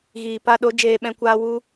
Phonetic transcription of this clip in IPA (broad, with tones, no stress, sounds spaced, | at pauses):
ɣ iː˨ p a˧ ɗ o˨˦ d͡ʒ eː˨ ɓ ɛ̃˨ kʷ aː˧ w u˧